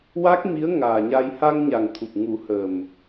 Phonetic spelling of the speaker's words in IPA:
wa˦˥k̚mi˧˥ə̯ŋaː˨˩ɲa˧j ha˧ŋɲa˨˩ŋt̪ʰu˨˩p̚ ŋu˨˩˦həː˨˩m

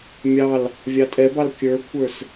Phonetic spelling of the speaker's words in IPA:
mʲɑl | vʲɑtʼɛbɑl kʲə˞kʷʰə˞s

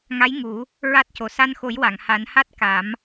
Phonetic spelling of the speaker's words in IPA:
ŋa˧˥j ŋu˨˩˦ | ɹa˦˥t̚co˨˩ sa˧nxo˨˩˦jwa˨˩˨ŋ ha˨˩˦nha˦˥t̚ ka˨˩˦m

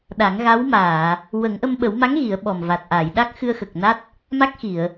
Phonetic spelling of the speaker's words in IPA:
ɗa˨˩˦ŋɣa˧˥w maː˨˩˨ | wə˨˩˦ŋʔə˧mɓə˨˩˦w ma˧˥ŋ ɣi˨˩˦ə̯ɓɔ˨˩mva˨˩t̚ʔa˨˩˨j ɗa˦˥k̚xɨ˧ə̯xə˨˩k̚na˦˥t̚ | ma˦˥k̚xi˨˩˨ə̯

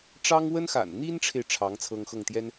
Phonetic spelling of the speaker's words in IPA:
ʈ͡ʂɑ˥ŋ wə˥nxa̰˨˩n n̪i˥nʈ͡ʂʰe˨ɪ̯ ʈ͡ʂʰɑ˧˥ŋ t͡sʰɤ˥ŋxɤ˥˩ŋt̪jɛ˥n

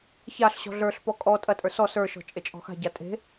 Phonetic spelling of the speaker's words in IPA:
çaɬɕɔ̤ ɮə˞ɬpɔ kʼɔ tʼɐtʼə˞ sɔ sə˞ʃɔ̤ t͡ʃʼet͡ʃʼɔ̤xa̤ɟa tʼe̤

